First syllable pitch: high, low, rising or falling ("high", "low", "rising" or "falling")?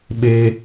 high